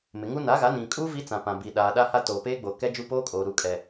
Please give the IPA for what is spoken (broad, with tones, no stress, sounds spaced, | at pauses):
m ɪ˨ ŋ u˦ n aː˨˦ ɣ a˨˦ n ĩ˨ kʼ uː˦ v i˦ t͡s ã˨ p ã˨ b iː˨ ɗ aː˨ ɗ a˦ h a˦ t oː˨ p eː˦ ɡ͡b oː˨ k ɛ˦ d͡ʒ u˦ p oː˦ kʼ oː˨ ɾ u˨ kʼ ɛ˨